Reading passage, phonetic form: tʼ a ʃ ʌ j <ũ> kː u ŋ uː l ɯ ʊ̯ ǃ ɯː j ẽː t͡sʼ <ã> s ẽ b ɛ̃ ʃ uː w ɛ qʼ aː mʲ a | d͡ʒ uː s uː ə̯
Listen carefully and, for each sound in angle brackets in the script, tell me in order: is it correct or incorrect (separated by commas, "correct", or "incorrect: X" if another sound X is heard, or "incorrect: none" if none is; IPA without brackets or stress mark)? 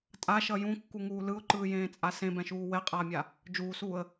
correct, incorrect: a